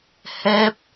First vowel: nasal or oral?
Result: oral